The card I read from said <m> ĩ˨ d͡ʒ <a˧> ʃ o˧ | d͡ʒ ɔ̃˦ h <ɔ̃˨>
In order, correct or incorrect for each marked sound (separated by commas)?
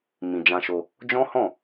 correct, incorrect, incorrect